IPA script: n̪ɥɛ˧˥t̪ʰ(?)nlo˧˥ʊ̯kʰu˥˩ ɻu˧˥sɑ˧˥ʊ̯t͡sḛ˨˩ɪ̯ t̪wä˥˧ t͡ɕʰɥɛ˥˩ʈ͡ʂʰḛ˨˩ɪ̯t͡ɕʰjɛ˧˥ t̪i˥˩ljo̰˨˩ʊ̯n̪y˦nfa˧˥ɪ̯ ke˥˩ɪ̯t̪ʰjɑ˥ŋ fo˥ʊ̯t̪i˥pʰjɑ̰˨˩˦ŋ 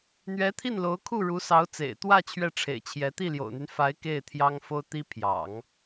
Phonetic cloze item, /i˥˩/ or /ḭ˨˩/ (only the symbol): i˥˩